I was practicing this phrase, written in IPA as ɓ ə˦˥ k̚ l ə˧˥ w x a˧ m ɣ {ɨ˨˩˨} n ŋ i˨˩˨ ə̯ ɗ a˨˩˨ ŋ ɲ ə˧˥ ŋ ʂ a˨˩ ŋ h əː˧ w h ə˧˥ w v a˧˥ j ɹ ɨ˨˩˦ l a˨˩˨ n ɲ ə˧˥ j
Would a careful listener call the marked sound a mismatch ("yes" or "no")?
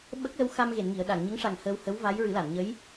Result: yes